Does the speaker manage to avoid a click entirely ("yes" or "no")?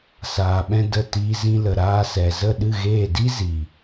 yes